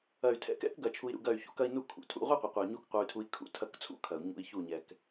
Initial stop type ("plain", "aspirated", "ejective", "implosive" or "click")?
aspirated